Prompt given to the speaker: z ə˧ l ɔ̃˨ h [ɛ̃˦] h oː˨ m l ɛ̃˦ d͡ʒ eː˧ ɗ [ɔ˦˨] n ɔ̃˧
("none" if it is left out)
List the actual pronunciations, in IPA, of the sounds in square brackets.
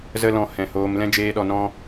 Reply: ɛ̃˨, ɔ˨

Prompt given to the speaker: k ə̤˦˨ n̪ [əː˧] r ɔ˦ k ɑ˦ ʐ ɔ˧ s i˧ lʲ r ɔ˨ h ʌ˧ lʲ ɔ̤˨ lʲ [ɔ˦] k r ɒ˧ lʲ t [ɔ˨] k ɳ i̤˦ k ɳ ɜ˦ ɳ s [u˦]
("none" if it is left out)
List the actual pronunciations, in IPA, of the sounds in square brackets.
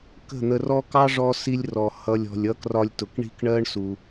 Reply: ə˧, ʌ˦, ʊ˨, u˧

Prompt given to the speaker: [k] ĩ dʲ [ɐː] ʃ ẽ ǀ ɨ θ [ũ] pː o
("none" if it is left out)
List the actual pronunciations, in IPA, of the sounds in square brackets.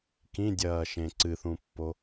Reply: k, ɐː, ũ

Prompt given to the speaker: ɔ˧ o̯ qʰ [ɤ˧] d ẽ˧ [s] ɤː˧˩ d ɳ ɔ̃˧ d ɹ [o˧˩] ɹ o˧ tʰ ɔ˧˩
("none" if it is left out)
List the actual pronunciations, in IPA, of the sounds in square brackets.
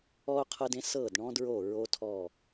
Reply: ɤ˧, s, o˧˩

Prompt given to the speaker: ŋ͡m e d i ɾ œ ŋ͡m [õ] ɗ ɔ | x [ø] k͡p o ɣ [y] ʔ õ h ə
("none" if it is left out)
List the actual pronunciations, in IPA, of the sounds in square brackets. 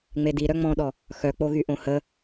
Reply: ɔ̃, œ, y

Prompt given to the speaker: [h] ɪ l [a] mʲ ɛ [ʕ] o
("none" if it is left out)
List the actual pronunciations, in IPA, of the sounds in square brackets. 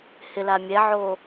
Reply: h, a, ʕ

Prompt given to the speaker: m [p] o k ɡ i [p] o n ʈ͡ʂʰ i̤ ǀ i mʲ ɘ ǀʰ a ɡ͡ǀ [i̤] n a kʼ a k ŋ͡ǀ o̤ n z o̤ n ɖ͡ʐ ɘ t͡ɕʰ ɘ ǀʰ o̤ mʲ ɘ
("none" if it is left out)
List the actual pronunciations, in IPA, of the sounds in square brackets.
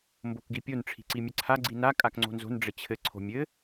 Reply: b, pʲ, i

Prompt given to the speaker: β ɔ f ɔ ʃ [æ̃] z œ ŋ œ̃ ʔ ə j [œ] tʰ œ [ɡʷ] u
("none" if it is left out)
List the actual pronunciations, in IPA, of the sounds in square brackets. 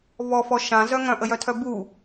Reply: ã, œ, b

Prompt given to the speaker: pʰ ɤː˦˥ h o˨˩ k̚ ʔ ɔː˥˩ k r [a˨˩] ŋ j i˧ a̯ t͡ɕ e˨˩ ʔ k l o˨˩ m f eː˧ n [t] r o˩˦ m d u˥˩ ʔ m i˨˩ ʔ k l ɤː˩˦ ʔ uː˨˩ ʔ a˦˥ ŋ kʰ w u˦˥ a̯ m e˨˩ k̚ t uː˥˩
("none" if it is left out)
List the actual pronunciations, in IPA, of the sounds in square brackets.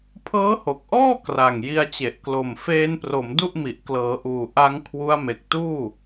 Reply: a˨˩, p

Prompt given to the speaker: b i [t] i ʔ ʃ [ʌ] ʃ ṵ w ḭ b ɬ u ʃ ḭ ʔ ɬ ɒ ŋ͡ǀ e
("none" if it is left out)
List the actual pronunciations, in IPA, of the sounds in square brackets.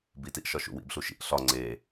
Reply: t, ɒ

